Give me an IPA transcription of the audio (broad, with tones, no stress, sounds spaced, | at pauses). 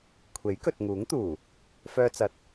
kʷʰ e˨˥ j k ɵ˨ t̚ ŋ uː˨˥ ŋ t̪ uː˨˩ | f œː˧ t͡s ɐ˨ t̚